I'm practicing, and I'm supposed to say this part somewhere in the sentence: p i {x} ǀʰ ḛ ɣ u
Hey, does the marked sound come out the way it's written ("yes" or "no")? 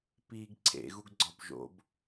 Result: no